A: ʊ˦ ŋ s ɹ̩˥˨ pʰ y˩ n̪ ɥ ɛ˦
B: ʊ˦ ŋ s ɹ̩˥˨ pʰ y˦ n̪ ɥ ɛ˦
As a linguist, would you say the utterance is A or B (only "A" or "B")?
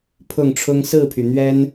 A